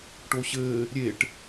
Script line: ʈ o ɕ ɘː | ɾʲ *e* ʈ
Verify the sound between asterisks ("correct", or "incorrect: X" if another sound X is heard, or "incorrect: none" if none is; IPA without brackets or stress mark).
correct